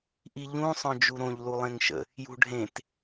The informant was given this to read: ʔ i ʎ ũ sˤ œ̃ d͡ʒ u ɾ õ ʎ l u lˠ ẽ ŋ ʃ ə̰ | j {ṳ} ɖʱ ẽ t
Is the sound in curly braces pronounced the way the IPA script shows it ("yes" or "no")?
yes